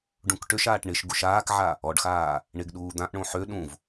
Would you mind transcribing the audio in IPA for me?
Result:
ɖũkʈøʃaːʈ ɳɪʃ ɡuʃaːkʕa | ɔɖxaː | ɳɪɡɗuː d̪ãʔɳõ ħø ɗũv

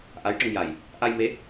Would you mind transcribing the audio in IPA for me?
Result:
ʔa˧˥jʈə˧ŋja˨˩j | ʔa˧jme˧˥

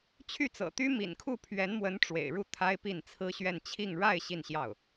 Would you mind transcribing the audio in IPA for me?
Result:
t͡ɕʰy˥˩t͡sɤ̰˨˩ t̪y˥mḭ˨˩nkʰu˥˩ pʰɥɛ˧˥nmwə˧˥n ʈ͡ʂwḛ˨˩ɪ̯ɻu˥˩ t̪ʰa˥ɪ̯pi˥˩n t͡sʰɹ̩˥ɕɥɛ˥˧n t͡ɕʰi˥˧ŋ ɻa˥˧ɪ̯ ɕi˥˧nɕjɑ˥˩ʊ̯

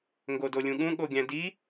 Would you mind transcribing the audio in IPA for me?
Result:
ŋɡodolʲũɠũ ɠoɡʲæ̃di

